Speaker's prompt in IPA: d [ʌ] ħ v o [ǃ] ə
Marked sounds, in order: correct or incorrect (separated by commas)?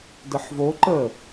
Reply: incorrect, correct